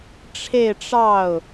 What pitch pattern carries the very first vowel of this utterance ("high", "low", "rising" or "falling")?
falling